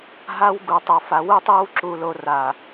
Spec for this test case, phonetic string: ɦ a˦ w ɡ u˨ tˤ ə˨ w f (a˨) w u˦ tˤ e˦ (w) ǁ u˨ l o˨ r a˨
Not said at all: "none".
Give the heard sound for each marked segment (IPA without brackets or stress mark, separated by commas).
a˨, w